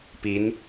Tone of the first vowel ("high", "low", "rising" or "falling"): rising